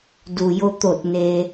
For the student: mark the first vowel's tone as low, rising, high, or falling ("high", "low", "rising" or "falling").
low